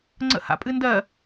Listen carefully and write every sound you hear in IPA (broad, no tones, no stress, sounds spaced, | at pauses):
ŋ͡ǀ ə̰ h a̰ pʼ ɨ n d ɜ